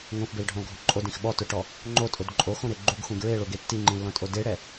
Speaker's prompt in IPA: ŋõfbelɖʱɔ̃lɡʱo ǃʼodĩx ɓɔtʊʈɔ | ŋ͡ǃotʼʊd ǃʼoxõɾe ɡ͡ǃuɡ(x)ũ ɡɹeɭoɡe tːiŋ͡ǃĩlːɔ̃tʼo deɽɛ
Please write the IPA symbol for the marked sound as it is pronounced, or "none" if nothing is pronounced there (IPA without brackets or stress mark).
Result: x